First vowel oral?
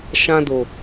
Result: no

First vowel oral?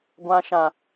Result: no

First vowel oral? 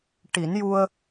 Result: yes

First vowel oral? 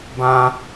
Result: no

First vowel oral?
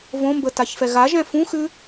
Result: no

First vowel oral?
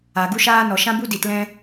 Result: yes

